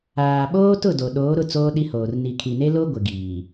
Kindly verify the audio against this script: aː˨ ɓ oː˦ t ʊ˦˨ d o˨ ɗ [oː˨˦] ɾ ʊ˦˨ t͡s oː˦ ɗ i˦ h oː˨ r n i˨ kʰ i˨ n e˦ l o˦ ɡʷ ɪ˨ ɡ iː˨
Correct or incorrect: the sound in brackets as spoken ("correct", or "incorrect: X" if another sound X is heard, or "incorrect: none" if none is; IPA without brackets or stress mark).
correct